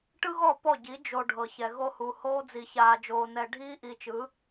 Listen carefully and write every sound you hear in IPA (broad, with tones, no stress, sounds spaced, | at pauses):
ʈ ɯ˦ ɣ ɔ˦˨ p ɔ˦˨ ɟ i˨˦ d͡ʒ o˨ ɖʱ ɤ˨ ç ɛ˨ ɣ o˦ h u˨ h oː˦ d͡z i˨ ç aː˨ d͡ʒ oː˨ n ɛ˨ ɖʱ iː˦ ʔ i˨ t͡ʃ ɯ˨˦